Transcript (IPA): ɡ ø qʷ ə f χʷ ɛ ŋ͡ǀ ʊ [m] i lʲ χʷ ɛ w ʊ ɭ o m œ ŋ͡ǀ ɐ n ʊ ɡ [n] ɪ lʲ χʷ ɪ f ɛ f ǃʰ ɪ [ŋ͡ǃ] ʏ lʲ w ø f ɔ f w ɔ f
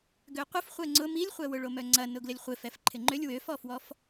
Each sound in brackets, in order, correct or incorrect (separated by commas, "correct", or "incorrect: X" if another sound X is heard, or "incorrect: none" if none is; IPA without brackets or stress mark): correct, incorrect: l, correct